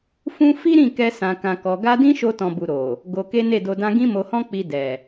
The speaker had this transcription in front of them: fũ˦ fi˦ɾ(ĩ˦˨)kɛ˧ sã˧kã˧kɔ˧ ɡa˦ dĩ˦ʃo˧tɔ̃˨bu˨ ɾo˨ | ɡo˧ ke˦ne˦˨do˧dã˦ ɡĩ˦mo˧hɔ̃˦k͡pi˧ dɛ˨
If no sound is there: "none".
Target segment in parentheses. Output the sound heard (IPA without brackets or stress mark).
ĩ˦˨